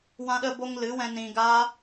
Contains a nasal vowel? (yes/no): yes